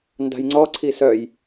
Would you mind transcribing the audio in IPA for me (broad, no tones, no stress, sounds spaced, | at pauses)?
n d a̤ j ŋ͡ǀ ɔ ǀʰ i s œ j